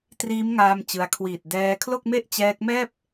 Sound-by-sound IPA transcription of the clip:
t r iː˦˥ m ŋ aː˧ m t͡ɕ ɯ˧ a̯ kʰ w iː˨˩ t̚ d ɛː˧ kʰ l o˥˩ k̚ m e˥˩ ʔ t͡ɕ ɛː˦˥ k̚ m ɛː˥˩ p̚

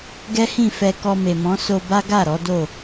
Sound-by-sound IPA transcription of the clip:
ɡ ɛ˦ h ĩ˦˨ f ɛ˧ k ɔ˧ m e˨ m ɔ̃˨˦ s o˧ b a˦ ɡ a˦˨ ɾ ɔ˨˦ d o˦˨

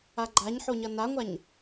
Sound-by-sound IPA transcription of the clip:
a ɡ͡ǃ a ɲ ħ o ɲ ʌ n a ŋʷ a ɲ

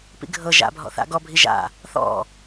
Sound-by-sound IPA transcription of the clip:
p ḭ ɡʱ ɤ ʒ a̰ bʱ ɔ̰ θ a̰ ɡ ɔ bʱ i ʒ a̰ | θ ɔ̰

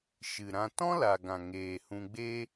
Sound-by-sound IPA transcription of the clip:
ʃ ɨ˨ ɾ ã˧ t ɔ̃˦ l a˨ ɡ ã˨ ŋ eː˨ h ũ˧ ɡ͡b eː˧

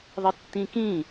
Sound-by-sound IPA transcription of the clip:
ðˤ ɪ tː ĩ k ĩ

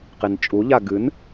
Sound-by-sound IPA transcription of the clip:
q i n t͡ʃʼ u ʎ a ɡ ɨ n

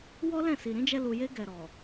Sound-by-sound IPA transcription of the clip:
w ɔ˦ l ɛ̃˦˨ s i˨ ɾ ĩ˨˦ d͡ʒ ɛ˧ l u˨ j e˧ ɡ ɛ˨ ɾ ɔ˨

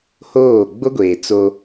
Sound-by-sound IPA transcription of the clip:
h oː˦˨ ɡ͡b o˦ ɡʷ eː˨ t͡s o˦

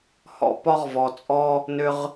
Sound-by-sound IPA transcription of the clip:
h ɔ̰˨ p ɒ˦ ʁ v ɔ˨ t͡sʼ ɔ˦ | n ʏ˦ ʁ

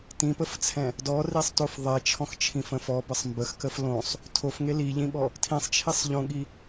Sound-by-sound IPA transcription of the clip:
t ĩ p ə f t͡sʰ ɛ̃ | d ɔ r i sˤ t o f ðˤ e t͡ʃʰ ɔ̃ x t͡ʃʰ ĩ f ə̃ f ɔ b ə sˤ m b ə x k ə f l õ sˤ | tʰ o f ŋ e l i ʎ ĩ ɓ ɔ | tʰ ĩ sˤ t͡ʃʰ i sˤ ʎ õ ɠ i

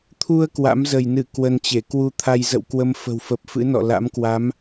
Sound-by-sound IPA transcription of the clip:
t̪ʰ u˧ ə̯ k w a̰˧˥ m z ə˧˩ j n ɨ˧˩ k w ə˧ n t͡ɕ e˧˩ k w u˧ t̪ʰ a˧ j z ə̰˧˨ w k w ə˨˦ m f ə̤˨˩ w f ə˨˩ p̚ f ɨ̰˧˥ n ɔ̰˧˨ l a̰˧˥ m k w a˨˦ m

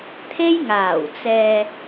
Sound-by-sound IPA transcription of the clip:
t̪ʰ e˧ j ŋ aː˨˩ w t͡s ɛː˨

